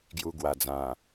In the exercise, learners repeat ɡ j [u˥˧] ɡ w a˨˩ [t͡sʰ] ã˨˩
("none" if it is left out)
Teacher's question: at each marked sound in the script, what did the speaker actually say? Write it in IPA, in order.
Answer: u˧, d͡z

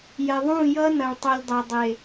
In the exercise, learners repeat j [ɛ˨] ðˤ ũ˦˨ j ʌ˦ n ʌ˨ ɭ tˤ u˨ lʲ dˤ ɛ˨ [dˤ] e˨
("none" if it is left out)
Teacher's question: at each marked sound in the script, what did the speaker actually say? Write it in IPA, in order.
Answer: ɛ˨, dˤ

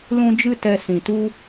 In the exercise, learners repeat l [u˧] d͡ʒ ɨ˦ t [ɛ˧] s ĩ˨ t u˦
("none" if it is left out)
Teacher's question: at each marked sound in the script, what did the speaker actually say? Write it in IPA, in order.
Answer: ũ˧, ɛ˧

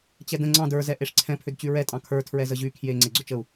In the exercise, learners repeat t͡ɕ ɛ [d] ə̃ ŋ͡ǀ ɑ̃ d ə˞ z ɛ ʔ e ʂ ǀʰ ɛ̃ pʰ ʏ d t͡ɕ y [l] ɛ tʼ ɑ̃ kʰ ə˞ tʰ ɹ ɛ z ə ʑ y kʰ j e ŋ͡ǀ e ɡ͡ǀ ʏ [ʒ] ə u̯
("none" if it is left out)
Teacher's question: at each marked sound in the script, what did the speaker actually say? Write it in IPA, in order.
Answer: d, ɹ, t͡ʃ

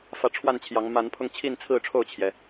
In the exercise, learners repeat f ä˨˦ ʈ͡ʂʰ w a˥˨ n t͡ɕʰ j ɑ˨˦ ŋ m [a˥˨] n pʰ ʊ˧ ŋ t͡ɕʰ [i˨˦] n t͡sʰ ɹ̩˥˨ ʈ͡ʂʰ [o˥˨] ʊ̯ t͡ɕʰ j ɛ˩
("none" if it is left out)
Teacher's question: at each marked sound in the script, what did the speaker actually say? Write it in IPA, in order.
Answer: a˨˦, i˥˨, o˥˨

